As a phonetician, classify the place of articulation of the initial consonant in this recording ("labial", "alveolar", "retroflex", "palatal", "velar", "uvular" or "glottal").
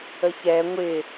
palatal